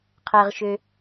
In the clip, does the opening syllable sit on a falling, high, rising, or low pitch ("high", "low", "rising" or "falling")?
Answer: low